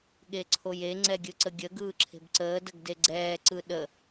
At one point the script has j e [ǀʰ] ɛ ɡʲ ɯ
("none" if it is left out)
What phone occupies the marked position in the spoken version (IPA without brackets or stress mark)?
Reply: ŋ͡ǀ